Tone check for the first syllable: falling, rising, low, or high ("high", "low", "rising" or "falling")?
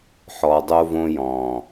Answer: low